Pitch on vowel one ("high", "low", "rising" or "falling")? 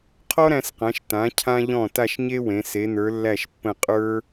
high